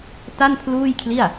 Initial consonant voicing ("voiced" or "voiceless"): voiceless